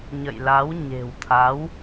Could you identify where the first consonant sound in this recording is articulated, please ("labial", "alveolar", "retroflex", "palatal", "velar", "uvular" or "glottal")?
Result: palatal